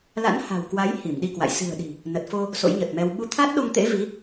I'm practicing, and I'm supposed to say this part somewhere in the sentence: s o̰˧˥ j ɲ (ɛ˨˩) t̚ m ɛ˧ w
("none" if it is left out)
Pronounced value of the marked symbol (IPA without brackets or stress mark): ə˨˩